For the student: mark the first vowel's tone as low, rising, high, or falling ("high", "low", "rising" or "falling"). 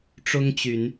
high